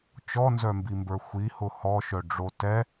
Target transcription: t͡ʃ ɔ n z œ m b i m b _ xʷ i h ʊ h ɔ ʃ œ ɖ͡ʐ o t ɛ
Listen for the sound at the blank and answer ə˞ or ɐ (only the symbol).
ə˞